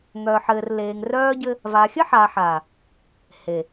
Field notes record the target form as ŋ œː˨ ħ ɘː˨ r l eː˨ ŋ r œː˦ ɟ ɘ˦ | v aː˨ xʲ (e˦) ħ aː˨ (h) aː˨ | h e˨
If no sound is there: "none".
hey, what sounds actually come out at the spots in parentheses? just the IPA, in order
ɘ˦, ħ

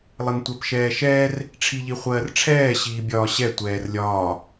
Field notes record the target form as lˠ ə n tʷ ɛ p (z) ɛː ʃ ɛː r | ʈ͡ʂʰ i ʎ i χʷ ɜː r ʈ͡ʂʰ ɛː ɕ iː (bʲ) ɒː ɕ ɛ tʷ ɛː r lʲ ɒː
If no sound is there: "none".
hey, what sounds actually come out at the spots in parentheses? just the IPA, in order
ʃ, bʲ

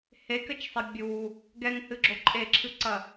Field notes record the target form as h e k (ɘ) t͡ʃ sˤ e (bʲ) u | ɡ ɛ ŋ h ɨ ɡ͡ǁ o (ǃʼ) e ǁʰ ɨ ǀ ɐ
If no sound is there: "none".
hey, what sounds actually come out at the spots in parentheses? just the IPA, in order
ɘ, bʲ, ǃʼ

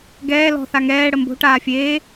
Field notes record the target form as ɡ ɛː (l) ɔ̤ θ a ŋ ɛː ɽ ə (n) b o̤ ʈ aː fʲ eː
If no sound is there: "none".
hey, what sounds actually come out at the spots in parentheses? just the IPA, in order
l, m

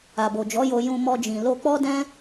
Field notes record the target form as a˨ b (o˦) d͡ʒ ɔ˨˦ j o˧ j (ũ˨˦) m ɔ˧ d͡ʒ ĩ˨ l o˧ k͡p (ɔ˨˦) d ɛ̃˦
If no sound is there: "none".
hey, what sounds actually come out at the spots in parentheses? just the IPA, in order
o˨, ũ˧, ɔ˦

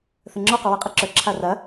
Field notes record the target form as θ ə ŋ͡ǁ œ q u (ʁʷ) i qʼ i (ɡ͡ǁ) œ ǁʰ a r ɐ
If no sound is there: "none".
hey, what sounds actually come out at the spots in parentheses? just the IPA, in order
w, ǁ

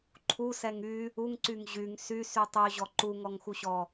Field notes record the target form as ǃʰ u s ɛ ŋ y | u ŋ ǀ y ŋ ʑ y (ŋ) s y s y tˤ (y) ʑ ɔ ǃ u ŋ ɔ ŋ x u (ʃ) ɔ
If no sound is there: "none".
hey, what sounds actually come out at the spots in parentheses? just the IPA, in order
ŋ, y, ɕ

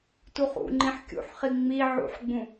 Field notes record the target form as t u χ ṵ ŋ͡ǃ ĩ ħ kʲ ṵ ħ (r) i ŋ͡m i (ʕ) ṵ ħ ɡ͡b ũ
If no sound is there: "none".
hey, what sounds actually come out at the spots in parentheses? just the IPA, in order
χ, ʕ

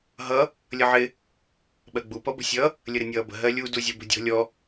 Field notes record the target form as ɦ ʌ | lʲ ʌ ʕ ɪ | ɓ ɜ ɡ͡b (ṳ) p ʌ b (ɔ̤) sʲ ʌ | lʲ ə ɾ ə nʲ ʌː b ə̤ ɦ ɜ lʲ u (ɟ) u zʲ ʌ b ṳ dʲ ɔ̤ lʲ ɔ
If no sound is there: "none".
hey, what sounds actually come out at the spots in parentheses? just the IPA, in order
u, ə̤, d

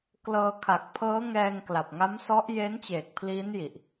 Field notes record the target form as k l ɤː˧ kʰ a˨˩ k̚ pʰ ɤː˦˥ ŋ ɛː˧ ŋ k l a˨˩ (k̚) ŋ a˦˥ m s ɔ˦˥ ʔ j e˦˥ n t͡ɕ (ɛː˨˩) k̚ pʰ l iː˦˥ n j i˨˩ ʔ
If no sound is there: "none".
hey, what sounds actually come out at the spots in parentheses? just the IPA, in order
p̚, eː˨˩

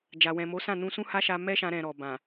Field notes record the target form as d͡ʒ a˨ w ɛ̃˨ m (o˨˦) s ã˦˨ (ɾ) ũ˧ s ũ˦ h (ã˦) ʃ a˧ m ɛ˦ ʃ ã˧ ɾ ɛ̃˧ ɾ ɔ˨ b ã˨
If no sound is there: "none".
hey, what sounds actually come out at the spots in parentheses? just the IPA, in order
o˨˦, n, a˦

